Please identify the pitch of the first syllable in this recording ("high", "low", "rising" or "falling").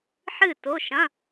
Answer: falling